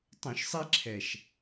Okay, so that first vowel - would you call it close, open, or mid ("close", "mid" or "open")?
close